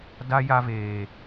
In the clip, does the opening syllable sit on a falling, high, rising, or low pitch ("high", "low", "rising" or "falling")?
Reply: high